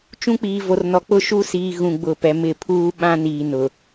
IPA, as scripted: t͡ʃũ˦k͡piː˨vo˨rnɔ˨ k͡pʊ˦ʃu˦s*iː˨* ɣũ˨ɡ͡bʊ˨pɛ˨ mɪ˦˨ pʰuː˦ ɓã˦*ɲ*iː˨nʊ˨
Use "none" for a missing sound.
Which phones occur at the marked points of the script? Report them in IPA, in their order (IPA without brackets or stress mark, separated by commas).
iː˨, n